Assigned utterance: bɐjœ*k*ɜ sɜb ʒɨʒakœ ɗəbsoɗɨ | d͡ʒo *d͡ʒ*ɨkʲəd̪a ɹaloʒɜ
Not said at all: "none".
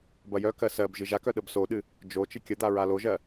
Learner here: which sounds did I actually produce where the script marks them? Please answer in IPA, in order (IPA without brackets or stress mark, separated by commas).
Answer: k, t͡ʃ